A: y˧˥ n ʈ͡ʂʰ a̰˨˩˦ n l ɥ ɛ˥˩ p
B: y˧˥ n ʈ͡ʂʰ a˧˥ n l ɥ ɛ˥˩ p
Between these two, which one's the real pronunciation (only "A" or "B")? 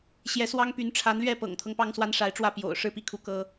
B